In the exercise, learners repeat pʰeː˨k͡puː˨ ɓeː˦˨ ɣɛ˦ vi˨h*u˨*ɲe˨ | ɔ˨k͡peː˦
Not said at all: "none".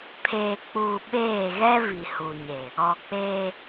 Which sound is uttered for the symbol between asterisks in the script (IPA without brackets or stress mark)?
u˨